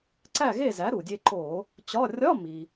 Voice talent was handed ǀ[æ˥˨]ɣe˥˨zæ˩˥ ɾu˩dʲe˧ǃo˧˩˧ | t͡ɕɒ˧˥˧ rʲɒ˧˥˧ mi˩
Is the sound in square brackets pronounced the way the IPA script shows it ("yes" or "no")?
yes